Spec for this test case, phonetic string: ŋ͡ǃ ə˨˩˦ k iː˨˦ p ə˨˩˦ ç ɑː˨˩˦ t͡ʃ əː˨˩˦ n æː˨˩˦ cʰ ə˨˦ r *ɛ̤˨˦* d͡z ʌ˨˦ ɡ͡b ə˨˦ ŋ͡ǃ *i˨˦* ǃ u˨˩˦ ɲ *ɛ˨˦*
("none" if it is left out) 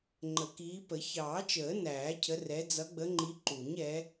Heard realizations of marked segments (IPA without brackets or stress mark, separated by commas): ɛ˨˦, i˨˦, ɛ˨˦